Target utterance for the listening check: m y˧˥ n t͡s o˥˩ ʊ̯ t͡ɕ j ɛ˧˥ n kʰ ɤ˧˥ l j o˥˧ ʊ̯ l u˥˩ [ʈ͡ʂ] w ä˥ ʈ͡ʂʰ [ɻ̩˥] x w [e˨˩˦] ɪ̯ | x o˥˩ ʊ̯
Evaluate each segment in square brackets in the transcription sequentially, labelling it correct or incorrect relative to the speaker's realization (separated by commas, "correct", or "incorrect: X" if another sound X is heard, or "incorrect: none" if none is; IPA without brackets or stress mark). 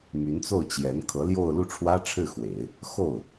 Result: incorrect: ʈ͡ʂʰ, incorrect: ɻ̩˥˩, correct